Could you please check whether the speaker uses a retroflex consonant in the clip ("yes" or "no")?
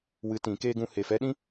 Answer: no